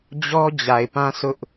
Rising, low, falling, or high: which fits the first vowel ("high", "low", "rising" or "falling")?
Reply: high